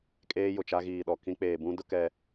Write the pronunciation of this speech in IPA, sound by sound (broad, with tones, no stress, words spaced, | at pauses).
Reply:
kʼeː˦jʊ˨t͡ʃa˦ ɣiː˨ɗɔ˨kĩ˦ k͡peː˨bũ˦dʊ˦ kɛ˦